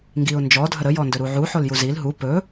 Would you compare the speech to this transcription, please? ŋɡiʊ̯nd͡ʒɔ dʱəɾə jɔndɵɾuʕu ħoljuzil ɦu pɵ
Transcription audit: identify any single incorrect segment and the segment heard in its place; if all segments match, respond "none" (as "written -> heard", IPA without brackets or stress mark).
none